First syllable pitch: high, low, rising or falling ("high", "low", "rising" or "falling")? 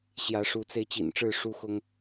rising